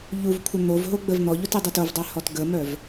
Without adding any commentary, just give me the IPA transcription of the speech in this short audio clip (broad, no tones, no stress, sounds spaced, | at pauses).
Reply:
ʎ u v kʷʰ ə n̪ o v ɦ o ɡ͡b ə v n̪ ɔ ʎ o t e dˤ ɛ t o v dˤ ɛ h ɔ t ɡ ə m œ v